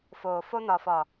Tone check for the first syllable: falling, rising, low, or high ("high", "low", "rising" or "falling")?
low